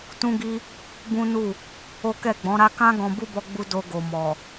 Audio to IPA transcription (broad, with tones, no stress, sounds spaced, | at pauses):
t ũ˦ ɡ i˦ | b ũ˦ n u˦˨ | o˦ k ɛ˦˨ ɡ͡b ɔ̃˨˦ ɾ a˦ k ã˦ ɡ ɔ̃˧ b u˦ b ɔ˧ ɡ͡b u˧ d o˧ ɡ o˨ m ɔ˨